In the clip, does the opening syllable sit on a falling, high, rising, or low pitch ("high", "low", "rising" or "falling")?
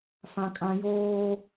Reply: high